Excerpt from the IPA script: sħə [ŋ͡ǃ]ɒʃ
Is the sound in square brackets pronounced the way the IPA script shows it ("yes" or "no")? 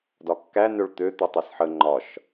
yes